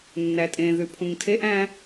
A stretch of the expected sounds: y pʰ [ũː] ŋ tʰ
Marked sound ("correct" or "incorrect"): incorrect